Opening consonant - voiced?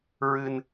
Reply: yes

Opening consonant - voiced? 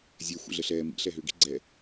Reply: yes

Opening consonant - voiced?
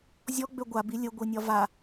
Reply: yes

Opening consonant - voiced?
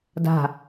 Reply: yes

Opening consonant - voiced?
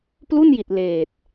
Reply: no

